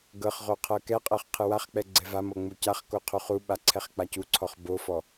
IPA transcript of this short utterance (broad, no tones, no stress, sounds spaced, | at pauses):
ɡ ɤ χ ʁ o qʰ ɤ k ɛ qʼ ɤ χ qʰ ɯ w a χ k͡p ɛ ɡ͡ǀ ɛ v a m ɤ ŋ͡m u c a χ k o qʰ u χ u ɓ a ǀʰ ɛ χ k͡p a c u ǀʰ ɔ χ b o f ɔ